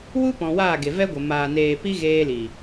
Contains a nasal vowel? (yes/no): yes